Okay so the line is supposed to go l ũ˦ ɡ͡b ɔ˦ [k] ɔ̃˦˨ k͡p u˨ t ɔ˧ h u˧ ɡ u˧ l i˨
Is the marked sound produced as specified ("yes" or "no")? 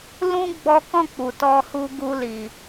yes